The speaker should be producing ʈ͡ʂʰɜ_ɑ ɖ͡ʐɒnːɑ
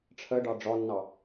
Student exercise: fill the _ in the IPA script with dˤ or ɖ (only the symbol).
ɖ